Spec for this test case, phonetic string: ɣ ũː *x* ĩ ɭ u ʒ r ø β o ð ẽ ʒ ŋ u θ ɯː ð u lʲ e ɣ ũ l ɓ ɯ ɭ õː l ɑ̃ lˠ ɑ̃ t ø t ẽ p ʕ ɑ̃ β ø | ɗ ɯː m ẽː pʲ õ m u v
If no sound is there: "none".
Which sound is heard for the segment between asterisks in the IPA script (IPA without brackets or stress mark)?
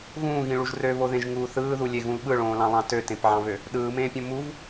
ɣ